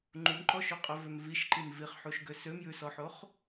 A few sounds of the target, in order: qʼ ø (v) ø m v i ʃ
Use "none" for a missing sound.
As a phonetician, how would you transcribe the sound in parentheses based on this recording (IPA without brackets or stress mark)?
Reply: v